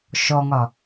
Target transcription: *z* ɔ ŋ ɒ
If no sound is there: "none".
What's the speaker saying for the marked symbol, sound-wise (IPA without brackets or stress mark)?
ʃ